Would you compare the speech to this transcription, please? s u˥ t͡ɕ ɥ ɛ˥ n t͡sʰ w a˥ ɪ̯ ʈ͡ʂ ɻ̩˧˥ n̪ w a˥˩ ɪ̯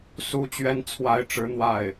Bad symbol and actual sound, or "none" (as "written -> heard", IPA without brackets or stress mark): none